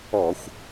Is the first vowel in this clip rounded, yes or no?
yes